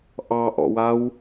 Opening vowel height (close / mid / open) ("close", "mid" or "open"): open